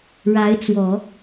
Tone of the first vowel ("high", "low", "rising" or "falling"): rising